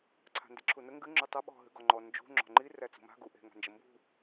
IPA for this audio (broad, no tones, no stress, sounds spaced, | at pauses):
ǀʰ a̤ n d i ǁʰ u n ə ŋ ɡ ɨ ŋ͡ǁ ə˞ tˤ ɐ ɓ ɔ̤ ɦ ɨ ɡ ɔ ŋ͡ǃ ɔ n d͡ʒ ṳ ŋ͡ǁ ɔ̤ ŋ͡ǃ i r æ t͡s ṳ m a̤ ɡ u ʔ e̤ ŋ a̤ n d͡ʒ ə m b ṳ